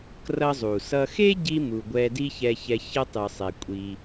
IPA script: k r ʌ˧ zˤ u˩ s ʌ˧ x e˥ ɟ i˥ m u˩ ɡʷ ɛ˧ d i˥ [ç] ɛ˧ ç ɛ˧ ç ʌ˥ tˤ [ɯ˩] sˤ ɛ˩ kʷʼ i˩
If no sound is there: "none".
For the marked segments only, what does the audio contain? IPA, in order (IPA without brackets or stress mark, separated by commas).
ç, ɯ˩